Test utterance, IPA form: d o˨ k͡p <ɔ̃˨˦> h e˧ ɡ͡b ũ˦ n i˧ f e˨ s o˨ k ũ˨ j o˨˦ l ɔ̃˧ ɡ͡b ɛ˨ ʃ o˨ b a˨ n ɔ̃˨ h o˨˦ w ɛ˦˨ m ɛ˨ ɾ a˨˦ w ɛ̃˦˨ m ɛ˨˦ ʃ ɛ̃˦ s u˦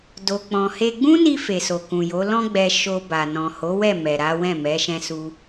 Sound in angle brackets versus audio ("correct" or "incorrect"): incorrect